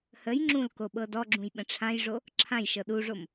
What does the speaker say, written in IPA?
h ə j ŋ͡ǁ ũ l k o ɓ ɤ d ɔ ɡ͡ǁ ũ j ɓ ə̃ ʈ͡ʂʰ ã j ʐ o | ǁʰ ã j ʃ ɤ ɗ u ʐ o m

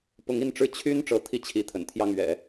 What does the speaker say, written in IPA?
p ʊ˧˥ ŋ i˥˧ n ʈ͡ʂ ɻ̩˥˩ t͡ɕʰ y˥ n ʈ͡ʂ ɤ˧˥ t̪ʰ i˥˩ t͡ɕʰ i˧˥ t̪ʰ ə̰˨˩ n t̪ʰ j ɑ˥˩ ŋ ɥ ɛ̰˨˩˦

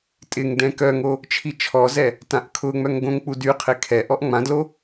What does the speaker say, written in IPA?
tʼ ɪ ŋ d ɛ̃ k œ ŋ o | t͡ʃʰ i t͡ʃʰ ɔ z ɛ | t ã ʔ kʰ ʊ ŋ͡m œ ŋ ɡ õ ŋ k͡p u d y qʰ ɪ kʰ ɛ ʔ ɔ ʔ ŋ͡m ã d l o

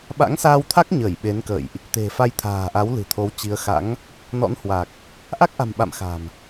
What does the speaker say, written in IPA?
ɓ a̰˧˥ ŋ s aː˧ w t̪ʰ a˦˥ k̚ ɲ əː˧˩ j ɓ e˨˦ n k ə̰˧˨ j ʔ | t̪ e̤˨˩ f a˧ j t̪ʰ a̤ː˨˩ ʔ a˨˦ w l ɨ̤˨˩ t̪ʰ o˨˦ w t͡ɕ i˨˦ ə̯ x a̰˧˥ ŋ | n ɔ̰˧˥ n h w a˨˩ k̚ | ʔ a˦˥ k̚ ʔ a̤˨˩ m ɓ a̰˧˨ m x a̤˨˩ m

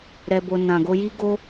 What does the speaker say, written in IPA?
ɾ ɛ˧ b o˧ n ã˨ ɡ o˧ j i˦ ɡ o˦

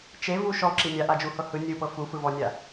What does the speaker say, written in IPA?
t͡ʃ e v u ʃ ɔ ǁ i nʲ a ʔ a d͡ʒ u h ɤ h ɯ nʲ ɯ p ɤ f u f ɯ v ɔ nʲ a

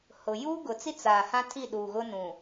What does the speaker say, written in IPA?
h ʊ˨ j uː˦ ɡ ʊ˨ t͡s i˦ t͡s aː˨ h ã˦ tʰ i˦˨ ɗ uː˨ ɣ ʊ˦ n ũ˨

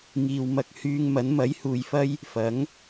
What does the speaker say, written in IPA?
ŋ iː˨ w m ɐ˧ k̚ h yː˧ ŋ m ɐ˨˥ n m ɐ˨˥ j h uː˨ j f ɐ˥ j | f ɐ˨˥ ŋ

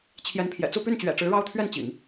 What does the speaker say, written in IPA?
t͡ɕʰ j ɛ˧˥ n pʰ j ɛ̰˨˩ t͡s u˥˧ p y˥˩ n t͡ɕ ɥ ɛ̰˨˩ ʈ͡ʂ ɻ̩˧˥ ɻ ɑ˥ ʊ̯ t̪ʰ ɥ ɛ˥˩ n t͡ɕ ḭ˨˩˦ ŋ

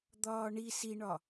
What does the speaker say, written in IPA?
d̪ ɒː ɳ i s i ɳ ɒ

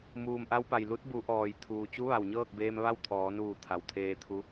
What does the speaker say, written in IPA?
m uː˩ m ʔ a˧ w p a˩ j l u˧˥ t̚ b u˩˧ ʔ ɔː˩ j t̪ʰ uː˩ t͡ɕ u˧˥ ʋ a˩ w ɲ ɤː˥˨ k̚ b eː˧ m ʋ a˥˨ w t̪ʰ ɔː˩˧ n uː˧˩ t̪ʰ a˩ w t̪ʰ eː˧ t̪ʰ u˧˥

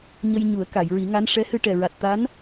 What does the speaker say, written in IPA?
ɲ ə˧ j ɲ u˨˩˦ ə̯ k a˨˩˨ j ɹ i˨˩˦ ŋ a˧˥ n ʂ ɛ˧˥ h ɨ˧ ʈ ɛ˨˩ ɹ a˨˩ t̚ t̪ a˧˥ n

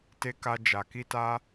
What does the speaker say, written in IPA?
t e˧ k a˧ d͡ʒ a˨ k i˧ t a˧

